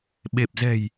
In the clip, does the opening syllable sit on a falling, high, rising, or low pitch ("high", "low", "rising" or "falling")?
low